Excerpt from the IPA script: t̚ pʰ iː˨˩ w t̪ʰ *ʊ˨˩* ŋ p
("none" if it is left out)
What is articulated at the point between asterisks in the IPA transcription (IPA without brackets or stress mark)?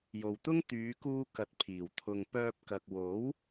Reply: ʊ˨